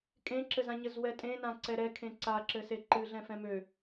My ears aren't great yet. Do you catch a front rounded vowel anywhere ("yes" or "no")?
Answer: yes